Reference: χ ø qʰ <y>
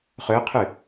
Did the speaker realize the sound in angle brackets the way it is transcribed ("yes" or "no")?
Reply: yes